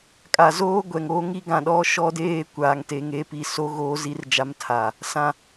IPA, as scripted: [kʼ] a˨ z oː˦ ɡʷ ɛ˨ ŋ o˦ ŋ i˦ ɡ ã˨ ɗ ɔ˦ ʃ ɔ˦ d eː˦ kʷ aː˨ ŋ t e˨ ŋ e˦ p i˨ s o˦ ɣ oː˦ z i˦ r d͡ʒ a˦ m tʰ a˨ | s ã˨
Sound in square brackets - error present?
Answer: no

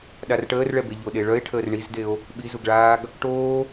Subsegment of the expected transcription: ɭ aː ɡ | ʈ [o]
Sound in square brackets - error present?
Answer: yes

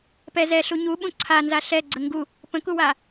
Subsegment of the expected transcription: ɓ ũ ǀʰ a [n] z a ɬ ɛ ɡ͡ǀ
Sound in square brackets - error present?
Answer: no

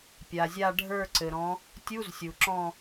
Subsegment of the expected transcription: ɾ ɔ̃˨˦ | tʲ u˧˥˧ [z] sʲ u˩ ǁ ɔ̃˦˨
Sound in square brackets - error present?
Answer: no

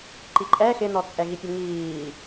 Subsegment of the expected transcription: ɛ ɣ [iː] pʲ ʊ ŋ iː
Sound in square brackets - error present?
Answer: yes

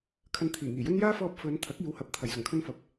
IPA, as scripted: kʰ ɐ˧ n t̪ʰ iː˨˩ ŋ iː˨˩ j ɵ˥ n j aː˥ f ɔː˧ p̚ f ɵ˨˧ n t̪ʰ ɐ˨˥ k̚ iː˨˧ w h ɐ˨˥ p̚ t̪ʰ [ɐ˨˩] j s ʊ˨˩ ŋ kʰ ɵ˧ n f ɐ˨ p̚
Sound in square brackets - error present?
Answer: no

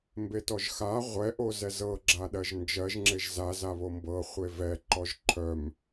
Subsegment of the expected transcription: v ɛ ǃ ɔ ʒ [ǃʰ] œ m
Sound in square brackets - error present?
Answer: no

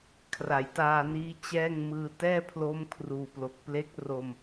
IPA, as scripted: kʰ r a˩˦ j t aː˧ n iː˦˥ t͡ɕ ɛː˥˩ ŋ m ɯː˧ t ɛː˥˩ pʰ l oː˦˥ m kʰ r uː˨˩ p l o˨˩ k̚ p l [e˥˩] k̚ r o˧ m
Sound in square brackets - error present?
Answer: yes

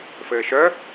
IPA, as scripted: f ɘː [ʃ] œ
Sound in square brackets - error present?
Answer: no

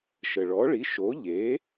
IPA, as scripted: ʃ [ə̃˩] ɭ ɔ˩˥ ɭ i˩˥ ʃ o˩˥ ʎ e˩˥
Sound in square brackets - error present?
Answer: yes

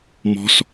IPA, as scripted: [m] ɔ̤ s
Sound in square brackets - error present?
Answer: no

